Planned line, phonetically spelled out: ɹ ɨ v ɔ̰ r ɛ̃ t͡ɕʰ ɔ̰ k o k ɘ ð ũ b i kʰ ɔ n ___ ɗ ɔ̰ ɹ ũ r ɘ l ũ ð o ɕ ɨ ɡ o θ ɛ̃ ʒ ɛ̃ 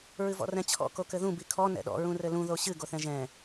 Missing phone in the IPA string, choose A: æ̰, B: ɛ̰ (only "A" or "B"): B